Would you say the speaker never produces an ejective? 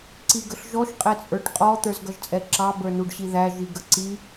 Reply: no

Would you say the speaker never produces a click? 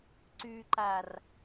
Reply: no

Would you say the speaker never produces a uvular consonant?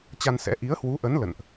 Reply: yes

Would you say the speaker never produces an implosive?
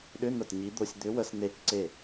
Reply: no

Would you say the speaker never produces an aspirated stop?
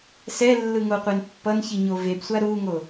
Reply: yes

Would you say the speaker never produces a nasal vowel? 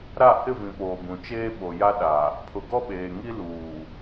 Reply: no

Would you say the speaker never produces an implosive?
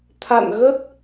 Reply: yes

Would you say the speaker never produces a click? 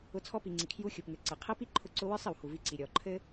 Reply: no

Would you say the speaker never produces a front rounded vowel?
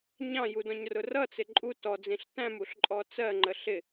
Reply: yes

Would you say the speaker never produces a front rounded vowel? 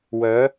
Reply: no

